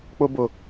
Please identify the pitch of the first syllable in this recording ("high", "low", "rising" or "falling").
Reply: high